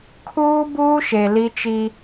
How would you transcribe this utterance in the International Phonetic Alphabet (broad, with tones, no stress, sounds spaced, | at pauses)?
kʰ uː˦ b uː˦ ʃ e˨ l i˦ t͡ʃ i˦